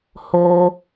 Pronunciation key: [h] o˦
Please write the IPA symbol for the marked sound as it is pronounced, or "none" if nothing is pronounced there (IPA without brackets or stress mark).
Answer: h